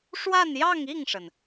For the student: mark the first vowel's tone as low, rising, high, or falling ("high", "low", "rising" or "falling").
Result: falling